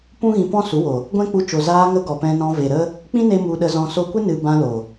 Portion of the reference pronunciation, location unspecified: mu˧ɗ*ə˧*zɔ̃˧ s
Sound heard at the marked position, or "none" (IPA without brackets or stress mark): ə˧